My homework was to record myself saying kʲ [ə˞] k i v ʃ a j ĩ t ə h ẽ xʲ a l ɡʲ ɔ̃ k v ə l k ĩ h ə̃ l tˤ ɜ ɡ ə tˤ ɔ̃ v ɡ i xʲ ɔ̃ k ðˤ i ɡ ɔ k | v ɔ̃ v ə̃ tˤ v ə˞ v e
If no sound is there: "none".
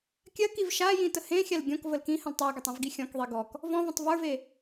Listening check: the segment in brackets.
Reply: ɜ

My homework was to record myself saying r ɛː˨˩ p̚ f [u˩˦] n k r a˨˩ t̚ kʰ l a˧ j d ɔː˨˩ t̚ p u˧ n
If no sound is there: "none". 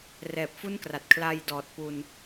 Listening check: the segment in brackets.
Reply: u˥˩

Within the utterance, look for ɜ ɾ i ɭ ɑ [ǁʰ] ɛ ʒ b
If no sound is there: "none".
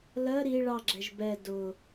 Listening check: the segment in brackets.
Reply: ɡ͡ǁ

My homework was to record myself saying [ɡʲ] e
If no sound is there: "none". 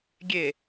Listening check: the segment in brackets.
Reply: ɡʲ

